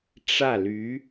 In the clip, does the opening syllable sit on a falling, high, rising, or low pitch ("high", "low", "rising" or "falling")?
falling